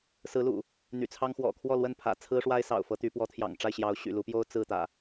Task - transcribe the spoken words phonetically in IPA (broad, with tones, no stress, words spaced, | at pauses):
sɹ̩˨˦lṵ˨˩ | n̪y̰˨˩t͡sʰɑ˦ŋ xwɔ̰˨˩ kʰwɔ˥˨lwə˥˨n pʰä̰˨˩t͡sʰɹ̩˦ʂwa˦ɪ̯ sɑ̰˨˩ʊ̯fɤ˨˦t̪y˨˦ pwɔ˨˦t̪ʰjɑ̰˨˩ŋ ʈ͡ʂa˥˨ɪ̯ɕjɑ˨˦ʊ̯ ɕy̰˨˩lu˨˦pjo˦ʊ̯ t͡sɹ̩˥˨ t̪ä̰˨˩